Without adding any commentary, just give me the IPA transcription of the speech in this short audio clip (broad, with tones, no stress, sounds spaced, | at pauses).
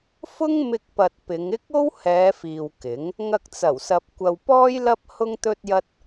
f ʊ˥ ŋ m ɪ˧ k̚ p ɐ˨ t̚ p ɪ˨˧ ŋ ɪ˥ k̚ o˥ w h ɛː˨˧ f iː˨ w k ɪ˨˥ ŋ | ŋ ɐ˧ k̚ t͡s ɐ˨˩ w s ɐ˨ p̚ kʷ ɐ˧ w p ɔː˥ j l ɐ˥ p̚ h ʊ˥ ŋ t̪ ɵ˥ t̚ j ɐ˥ t̚